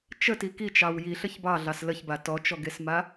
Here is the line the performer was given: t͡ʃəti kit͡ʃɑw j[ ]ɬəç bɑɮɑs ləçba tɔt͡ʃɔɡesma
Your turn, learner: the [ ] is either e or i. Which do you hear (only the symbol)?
i